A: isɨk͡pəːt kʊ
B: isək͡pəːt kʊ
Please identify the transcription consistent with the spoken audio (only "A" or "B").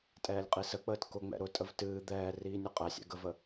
B